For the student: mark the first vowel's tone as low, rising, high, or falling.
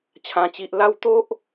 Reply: low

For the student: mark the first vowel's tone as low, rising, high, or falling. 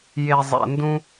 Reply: low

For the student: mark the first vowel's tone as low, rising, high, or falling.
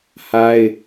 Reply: high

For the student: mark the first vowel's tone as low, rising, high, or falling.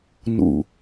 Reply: low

